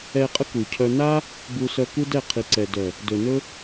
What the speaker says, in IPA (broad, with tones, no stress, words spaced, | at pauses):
ɛ˧qʼə˦ku˨cʰœ˧ na˦ | bu˧sœ˧ ku˦dɛ˦˨qʰi˨ǀɛ˨ dœ˨ | dɵ˨ nɵ˦